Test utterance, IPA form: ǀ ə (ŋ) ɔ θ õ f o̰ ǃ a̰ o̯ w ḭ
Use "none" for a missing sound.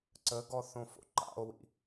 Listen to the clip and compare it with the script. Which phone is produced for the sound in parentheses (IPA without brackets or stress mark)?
ɡ